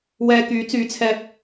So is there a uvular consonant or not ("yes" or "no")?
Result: no